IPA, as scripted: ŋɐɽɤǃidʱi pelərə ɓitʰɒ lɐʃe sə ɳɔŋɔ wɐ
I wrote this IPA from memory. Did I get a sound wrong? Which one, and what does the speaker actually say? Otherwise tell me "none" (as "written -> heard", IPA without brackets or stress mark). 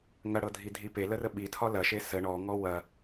ǃ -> dʱ